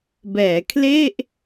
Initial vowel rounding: unrounded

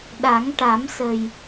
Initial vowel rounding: unrounded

